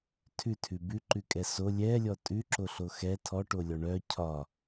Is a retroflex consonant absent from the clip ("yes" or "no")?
no